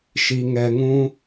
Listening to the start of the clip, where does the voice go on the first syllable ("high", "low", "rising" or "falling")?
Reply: low